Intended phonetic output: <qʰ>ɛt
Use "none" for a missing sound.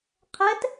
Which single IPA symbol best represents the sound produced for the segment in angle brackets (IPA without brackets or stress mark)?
qʰ